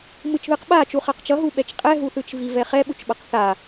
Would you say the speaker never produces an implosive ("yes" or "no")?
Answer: no